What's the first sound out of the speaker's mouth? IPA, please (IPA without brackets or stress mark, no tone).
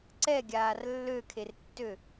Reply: ǀ